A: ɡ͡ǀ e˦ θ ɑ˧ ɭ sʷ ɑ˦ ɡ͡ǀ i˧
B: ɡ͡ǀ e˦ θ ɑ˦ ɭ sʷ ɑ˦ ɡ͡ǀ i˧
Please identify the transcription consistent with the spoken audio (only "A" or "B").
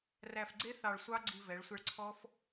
A